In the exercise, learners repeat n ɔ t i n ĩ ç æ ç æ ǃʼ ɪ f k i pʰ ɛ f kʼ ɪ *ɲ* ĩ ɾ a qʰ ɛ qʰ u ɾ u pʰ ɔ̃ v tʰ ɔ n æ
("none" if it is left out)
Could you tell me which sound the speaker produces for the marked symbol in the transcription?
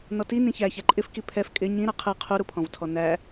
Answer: ɲ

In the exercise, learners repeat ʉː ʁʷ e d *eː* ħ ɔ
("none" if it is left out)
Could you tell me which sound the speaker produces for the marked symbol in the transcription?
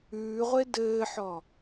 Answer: ɘː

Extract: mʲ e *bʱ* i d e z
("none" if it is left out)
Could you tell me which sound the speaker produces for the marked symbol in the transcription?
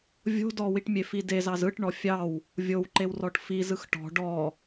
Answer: f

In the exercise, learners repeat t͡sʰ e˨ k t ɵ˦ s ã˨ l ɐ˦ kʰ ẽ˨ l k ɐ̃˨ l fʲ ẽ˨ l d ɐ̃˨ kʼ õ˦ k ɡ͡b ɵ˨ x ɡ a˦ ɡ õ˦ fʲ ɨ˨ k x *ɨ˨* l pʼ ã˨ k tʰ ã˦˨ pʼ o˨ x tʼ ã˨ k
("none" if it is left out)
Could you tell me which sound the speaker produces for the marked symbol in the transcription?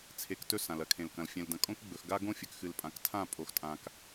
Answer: ɨ˨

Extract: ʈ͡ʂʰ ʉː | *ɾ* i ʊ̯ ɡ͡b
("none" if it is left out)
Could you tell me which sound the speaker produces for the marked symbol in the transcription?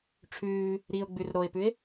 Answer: ɾ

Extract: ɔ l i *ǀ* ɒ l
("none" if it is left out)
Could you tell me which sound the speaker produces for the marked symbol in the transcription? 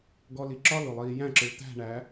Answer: ǁ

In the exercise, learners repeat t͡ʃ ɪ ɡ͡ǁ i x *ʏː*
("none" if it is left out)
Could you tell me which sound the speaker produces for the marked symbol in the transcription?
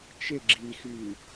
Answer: yː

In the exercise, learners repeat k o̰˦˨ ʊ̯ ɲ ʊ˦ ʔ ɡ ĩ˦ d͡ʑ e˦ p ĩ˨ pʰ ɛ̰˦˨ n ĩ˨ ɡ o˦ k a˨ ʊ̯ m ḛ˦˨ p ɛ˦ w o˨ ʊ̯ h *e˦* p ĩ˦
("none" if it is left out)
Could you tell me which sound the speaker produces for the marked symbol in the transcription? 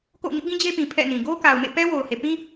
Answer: e˨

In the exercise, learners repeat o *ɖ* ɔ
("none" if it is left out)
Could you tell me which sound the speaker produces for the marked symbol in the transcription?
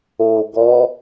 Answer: ɡ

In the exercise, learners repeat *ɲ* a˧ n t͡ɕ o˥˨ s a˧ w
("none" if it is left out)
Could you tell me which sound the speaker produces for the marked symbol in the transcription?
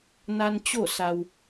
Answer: n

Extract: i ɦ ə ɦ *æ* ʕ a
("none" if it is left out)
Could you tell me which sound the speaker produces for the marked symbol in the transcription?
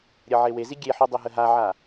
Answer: a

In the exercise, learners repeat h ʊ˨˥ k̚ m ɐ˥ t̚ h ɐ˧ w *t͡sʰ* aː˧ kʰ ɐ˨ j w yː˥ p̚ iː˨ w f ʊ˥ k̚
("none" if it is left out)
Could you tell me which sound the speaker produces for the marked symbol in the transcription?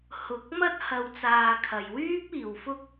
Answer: t͡s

